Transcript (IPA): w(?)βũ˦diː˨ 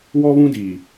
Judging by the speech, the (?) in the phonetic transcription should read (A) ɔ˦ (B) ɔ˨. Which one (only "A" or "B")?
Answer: A